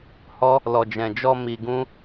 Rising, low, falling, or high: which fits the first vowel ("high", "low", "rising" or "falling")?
high